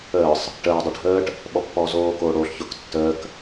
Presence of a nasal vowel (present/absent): absent